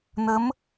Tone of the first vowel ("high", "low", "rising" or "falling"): rising